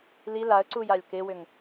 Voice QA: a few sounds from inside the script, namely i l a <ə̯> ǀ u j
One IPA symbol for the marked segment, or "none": ə̯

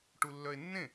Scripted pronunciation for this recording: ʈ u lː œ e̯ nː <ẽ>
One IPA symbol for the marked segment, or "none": ẽ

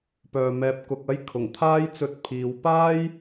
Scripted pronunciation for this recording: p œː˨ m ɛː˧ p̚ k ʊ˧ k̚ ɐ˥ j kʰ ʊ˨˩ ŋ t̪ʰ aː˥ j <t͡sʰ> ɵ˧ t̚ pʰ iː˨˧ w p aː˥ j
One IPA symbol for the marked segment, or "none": t͡s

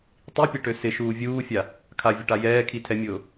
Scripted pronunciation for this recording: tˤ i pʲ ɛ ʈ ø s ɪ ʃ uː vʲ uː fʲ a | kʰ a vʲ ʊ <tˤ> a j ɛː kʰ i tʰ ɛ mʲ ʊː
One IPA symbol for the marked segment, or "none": ʈ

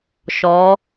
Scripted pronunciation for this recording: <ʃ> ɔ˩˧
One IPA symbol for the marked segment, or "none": ʃ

